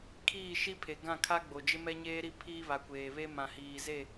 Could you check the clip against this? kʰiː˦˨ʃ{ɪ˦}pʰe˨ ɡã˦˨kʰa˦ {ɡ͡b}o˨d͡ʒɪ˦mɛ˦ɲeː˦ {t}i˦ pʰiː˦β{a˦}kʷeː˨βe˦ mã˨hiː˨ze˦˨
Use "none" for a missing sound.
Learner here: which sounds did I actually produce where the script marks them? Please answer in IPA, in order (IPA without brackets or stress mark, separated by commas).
i˦, ɡ͡b, ɾ, a˨